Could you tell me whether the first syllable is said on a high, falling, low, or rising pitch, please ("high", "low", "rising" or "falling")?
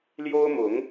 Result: high